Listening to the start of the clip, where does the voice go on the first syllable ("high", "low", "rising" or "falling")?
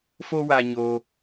high